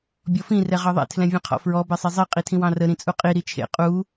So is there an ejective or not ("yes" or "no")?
yes